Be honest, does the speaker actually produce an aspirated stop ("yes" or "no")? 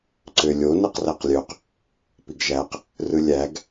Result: no